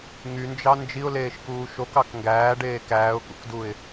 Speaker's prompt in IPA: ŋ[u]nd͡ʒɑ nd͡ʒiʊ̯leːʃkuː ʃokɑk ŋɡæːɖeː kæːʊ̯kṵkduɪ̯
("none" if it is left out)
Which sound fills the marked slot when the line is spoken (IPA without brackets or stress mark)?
y